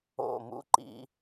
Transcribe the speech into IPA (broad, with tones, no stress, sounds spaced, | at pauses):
o̰˧˩ m ṵ˦ ǃ ḭ˦